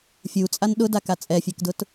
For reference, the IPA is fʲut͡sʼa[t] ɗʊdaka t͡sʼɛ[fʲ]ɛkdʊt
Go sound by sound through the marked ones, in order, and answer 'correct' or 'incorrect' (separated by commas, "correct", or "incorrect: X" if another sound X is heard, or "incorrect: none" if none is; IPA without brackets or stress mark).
incorrect: n, correct